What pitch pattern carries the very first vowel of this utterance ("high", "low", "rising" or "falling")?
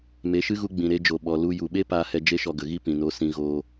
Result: rising